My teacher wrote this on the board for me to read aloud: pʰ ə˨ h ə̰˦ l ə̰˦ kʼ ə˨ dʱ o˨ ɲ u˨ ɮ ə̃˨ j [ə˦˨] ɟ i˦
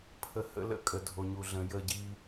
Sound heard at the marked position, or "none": ə˦˨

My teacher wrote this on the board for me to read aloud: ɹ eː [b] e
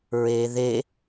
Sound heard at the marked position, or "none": ð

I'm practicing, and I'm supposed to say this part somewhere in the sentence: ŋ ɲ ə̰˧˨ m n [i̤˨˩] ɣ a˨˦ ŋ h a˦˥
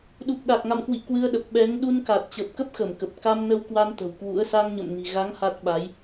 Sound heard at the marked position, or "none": i̤˨˩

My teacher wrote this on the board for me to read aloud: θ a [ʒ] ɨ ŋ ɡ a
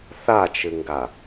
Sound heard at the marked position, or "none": t͡ʃ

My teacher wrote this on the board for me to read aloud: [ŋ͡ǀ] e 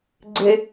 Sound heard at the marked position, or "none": ɡ͡ǀ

